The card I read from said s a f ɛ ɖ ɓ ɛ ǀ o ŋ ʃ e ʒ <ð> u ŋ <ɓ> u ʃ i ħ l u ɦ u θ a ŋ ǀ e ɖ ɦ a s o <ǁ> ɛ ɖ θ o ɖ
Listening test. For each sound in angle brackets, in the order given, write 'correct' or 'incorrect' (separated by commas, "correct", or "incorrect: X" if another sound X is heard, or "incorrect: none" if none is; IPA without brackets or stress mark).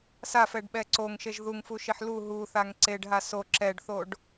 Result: correct, incorrect: f, correct